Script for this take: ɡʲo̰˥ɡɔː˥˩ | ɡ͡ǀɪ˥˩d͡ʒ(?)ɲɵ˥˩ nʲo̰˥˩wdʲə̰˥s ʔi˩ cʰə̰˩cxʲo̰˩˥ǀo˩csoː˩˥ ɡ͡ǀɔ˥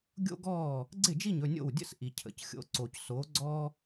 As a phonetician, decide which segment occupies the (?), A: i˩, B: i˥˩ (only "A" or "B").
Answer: B